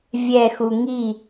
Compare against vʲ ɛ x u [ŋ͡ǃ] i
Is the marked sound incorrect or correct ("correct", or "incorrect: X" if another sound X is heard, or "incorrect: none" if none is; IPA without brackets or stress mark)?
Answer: incorrect: ŋ